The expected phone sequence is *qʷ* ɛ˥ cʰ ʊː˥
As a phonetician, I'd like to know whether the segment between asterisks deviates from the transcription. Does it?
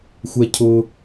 yes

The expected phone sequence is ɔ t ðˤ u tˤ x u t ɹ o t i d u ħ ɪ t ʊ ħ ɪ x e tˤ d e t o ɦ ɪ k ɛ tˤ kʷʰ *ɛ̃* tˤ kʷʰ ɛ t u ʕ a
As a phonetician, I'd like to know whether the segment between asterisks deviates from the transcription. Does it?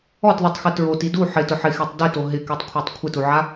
yes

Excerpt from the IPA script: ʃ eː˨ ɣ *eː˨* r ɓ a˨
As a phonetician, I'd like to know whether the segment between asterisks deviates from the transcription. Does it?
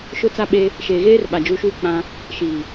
yes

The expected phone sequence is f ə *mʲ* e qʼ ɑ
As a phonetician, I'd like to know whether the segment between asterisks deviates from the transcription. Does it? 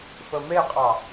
yes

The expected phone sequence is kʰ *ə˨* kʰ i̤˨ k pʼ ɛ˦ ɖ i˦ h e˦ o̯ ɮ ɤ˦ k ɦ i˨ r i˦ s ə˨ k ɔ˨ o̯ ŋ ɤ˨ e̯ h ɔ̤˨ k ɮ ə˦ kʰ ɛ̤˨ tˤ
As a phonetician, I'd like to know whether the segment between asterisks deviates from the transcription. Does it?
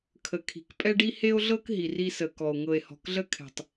no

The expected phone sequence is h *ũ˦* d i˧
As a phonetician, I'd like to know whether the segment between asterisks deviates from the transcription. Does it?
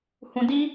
yes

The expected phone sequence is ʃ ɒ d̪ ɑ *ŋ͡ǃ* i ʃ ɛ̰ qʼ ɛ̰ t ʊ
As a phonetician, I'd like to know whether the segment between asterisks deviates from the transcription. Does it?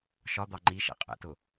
no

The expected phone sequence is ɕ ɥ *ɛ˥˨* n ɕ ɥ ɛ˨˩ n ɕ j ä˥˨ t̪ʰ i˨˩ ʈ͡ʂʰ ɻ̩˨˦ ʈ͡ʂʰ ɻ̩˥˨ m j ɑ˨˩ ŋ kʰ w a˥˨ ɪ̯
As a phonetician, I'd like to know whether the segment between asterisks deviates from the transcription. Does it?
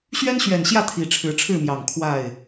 yes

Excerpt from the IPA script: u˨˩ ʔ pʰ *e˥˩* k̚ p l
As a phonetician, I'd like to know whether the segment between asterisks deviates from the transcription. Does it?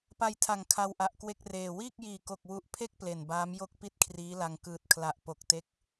no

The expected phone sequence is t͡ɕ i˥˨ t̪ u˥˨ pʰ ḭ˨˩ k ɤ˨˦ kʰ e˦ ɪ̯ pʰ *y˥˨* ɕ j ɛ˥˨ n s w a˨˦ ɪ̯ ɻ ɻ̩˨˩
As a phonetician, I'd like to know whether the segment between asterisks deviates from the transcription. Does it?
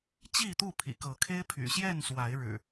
yes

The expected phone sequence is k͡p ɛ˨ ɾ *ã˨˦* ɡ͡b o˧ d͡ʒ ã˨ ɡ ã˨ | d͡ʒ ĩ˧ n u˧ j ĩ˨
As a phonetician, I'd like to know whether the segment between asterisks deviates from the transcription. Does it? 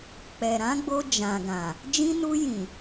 no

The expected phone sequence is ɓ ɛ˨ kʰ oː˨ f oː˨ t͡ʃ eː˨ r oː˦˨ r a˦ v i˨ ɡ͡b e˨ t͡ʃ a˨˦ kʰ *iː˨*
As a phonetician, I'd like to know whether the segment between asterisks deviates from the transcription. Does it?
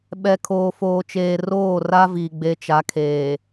yes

